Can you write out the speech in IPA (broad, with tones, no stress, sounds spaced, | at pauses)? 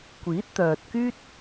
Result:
kʷ iː˨˥ t̚ t̪ œː˨ t̚ k yː˥ t̚